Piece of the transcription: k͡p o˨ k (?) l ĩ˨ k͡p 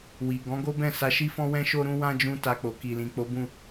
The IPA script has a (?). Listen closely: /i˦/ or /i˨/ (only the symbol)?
i˨